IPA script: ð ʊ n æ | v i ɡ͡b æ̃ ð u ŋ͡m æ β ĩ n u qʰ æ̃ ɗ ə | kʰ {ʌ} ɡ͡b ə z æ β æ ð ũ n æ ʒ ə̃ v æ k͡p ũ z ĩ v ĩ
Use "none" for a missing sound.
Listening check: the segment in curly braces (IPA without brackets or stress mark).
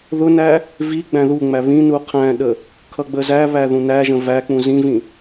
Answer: ʌ